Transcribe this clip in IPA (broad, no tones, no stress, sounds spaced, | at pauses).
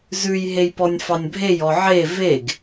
z ʉ j ɦ e j p ɔ nʲ f ɑ nʲ bʱ e j ɔ ʕ e v e ɡ